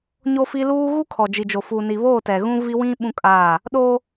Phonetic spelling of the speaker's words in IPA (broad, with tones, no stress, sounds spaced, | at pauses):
ɲ o˦ f i˦ l uː˦ ɣ u˦ kʰ ɔ˨ d͡ʒ i˨ d͡ʒ o˨ f u˨ n i˨ β oː˦˨ t ɛ˨ ɣ ũ˦ v i˦ w ĩ˦ ɓ ũ˦ kʼ aː˦˨ | ɗ oː˦